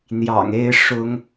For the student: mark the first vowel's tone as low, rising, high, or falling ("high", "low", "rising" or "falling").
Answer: low